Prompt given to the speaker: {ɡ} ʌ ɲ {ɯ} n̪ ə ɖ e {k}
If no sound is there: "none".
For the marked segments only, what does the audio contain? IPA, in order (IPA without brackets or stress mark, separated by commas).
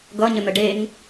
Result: ɡ, ə, ŋ